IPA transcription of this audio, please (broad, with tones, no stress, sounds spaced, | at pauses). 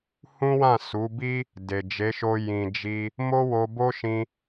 h ũ˦ w ã˦˨ s u˨˦ b i˦ | d e˨ d͡ʒ e˨˦ ʃ o˧ j ĩ˨ d͡ʒ i˧ | m o˦ w o˧ b o˦ ʃ ĩ˧